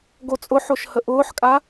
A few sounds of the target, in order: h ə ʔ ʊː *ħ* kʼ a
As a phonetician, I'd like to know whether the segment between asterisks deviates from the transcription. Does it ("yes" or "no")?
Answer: no